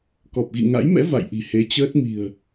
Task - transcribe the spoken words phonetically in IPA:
kɔ˨˩p̚ɣḭ˧˨ŋa̰˧˥jmɛ̰˧˥ va̰˧˨jʔi̤˨˩he˨˦ t͡ɕəː˦˥t̚ mi̤˨˩ə̯

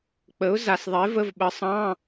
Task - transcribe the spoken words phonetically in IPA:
k͡pə˨˥ʊ̯za˨sðˤe˨˥və˧˥˧v ɓə˨˥sˤɑ̃˧˥˧

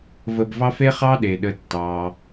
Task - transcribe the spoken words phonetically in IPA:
və˨bvɑ˦fe˥ χɑ˥ɗe˩ɗə˨ tːɑ˩

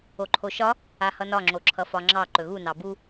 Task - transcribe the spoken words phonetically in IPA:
oǃʰoʃɒ | ahʌnɒ ŋ͡ǁoǁʰʌfɒŋ͡ǁɑ ǃɵɣu nɑbu

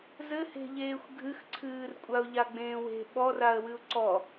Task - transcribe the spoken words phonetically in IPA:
zɘhe̤ʎeːxʷ ɡʱɨxǀʰɨːr kʷʼaʊ̯ʎaɡ͡bẽːwe̤ ɓɔraə̯ wɨʊ̯ǀɔ

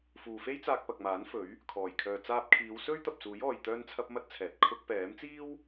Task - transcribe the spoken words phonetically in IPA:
fuː˨fe˥j t͡saː˧k̚pɐ˨k̚maː˨˥nfɵ˨˥ɥ | kʰɔː˨˩jkʰœː˨ t͡saː˧p̚kʰiː˨˧wsɵ˥ɥ t̪ɐ˨p̚suː˨˥j ɔː˨j t̪œː˥nt͡sʰɐ˥p̚mɐ˥t̚t͡sʰɛː˨t̚ kʰʊ˧k̚pɛː˨˥m t͡siː˥w

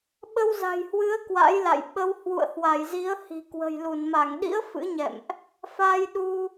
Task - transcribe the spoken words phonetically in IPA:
ɓə˧wza̤˨˩jhwɨ˨˦ə̯ kwa̰˧˥jla̰˧˨j ɓə˧w hwṵ˧˨ə̯hwa˧˩jzi˨˦ə̯ hi̤˨˩ kwə̤˨˩j lu˧˩nma˧˩ŋɗḭ˧˥ə̯ fɨ̰˧˥ɲɛ̰˧˨mʔ | fa˧jɗu˧

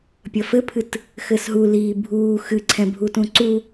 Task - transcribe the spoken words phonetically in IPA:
pʲɐfɘpʰɨt | xɘsɦu liːbʱuː xɨǀʰɛ̃bʱutũ ǀu

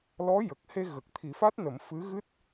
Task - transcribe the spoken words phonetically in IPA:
lɔ˧˥jə˨˩k̚he˧ ɣə˨˩k̚t̪ʰi˨˩˦ fa˦˥t̚nə˨˩˦m fɨ˧˥ ɣɨ˦˥t̚

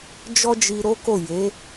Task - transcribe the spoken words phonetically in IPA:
d͡ʒɔ˦d͡ʒi˧ɾo˦ko˦˨ je˨˦

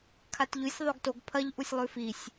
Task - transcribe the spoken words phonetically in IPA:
kʰatʎʉsʲ ðˤoɡtoɡ pʰɐʎ ʔusʲlˠʉfisʲ

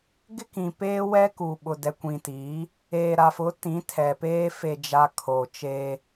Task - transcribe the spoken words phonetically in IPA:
ɡɪ˦kĩ˨peː˦ wɛ˦ku˨ ɓʊ˨dɛ˨kʷĩ˨tiː˨˦ | eː˨ɾa˨fʊ˨˦ tĩ˨˦tʰɛ˨peː˦ fe˨d͡ʒa˨ kʰo˨ t͡ʃeː˦

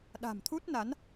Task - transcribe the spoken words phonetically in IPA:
ɗa̤˨˩mt̪ʰu˦˥t̚na˨˦n

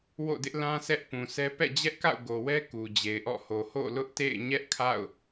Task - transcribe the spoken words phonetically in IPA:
wo̰˦˨dɪ˦ʔlã˦ sʰɛ˦ʔpũ˨sʰɛ˦ pɛ̰˦˨d͡ʑɛ˦ʔka̰˦˨ʊ̯ ɡo˨wɛ˦ ku˨d͡ʑe˨ɪ̯ʔɔ̰˦˨ho˨ ho̰˦˨lʊ˦ʔtḛ˦˨ɪ̯ ɲɛ˦ʔkʰa̰˦˨ʊ̯

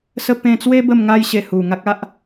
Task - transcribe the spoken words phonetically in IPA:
sə˦ pẽ˧t͡swe˦ bə˥˧mŋa˦jɕe˧ hu˨˩ŋa˦k̚ a˦ʔ

